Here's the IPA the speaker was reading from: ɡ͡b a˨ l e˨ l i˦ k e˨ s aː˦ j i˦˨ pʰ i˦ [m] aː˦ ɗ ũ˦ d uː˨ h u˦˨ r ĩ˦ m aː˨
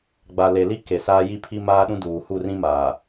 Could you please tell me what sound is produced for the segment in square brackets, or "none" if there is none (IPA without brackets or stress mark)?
m